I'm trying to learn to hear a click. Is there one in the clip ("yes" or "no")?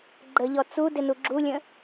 yes